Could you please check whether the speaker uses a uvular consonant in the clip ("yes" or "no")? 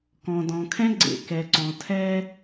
no